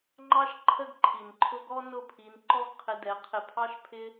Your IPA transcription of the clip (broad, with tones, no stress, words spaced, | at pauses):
ŋ͡ǃɑ˦ʃ ǃʰə˦ɡǃʰi˨nǃʰʊ˦ ɡɔ˦ nʊ˦˨pʰi˧n ǃɔ˦ɡqʰɪ˧dɛ˨˦qʰɪ˧ pʰɑ˦ʃpʰɪ˦